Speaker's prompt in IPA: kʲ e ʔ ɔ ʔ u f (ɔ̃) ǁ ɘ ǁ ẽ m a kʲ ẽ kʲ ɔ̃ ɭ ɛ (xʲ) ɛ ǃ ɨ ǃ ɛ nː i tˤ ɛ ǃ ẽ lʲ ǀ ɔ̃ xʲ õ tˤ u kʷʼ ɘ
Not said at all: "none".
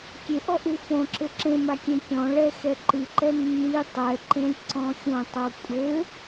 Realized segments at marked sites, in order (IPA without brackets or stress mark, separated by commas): õ, x